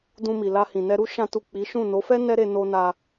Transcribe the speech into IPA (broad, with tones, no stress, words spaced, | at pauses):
dũ˧mi˨ la˧hĩ˨nɛ˧ɾu˦ ʃã˦tu˦˨ k͡pi˨˦ʃũ˦˨ no˨˦fɛ˦ nɛ˦ɾe˧ no˧na˧